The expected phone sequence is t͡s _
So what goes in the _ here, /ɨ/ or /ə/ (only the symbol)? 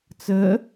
ə